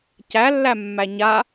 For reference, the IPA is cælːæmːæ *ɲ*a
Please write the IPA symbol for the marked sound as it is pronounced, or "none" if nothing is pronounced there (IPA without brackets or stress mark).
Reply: ɲ